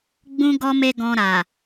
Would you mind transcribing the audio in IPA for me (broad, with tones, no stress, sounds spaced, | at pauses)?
ɡ͡b ũ˦ ɡ ɔ˦ m e˦ ɡ ɔ̃˧ ɾ a˨